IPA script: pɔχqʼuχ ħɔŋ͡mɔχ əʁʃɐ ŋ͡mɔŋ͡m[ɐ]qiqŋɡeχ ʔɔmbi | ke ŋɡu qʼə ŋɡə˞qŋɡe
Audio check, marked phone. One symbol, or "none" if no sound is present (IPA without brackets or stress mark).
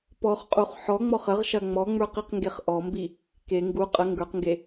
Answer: ə˞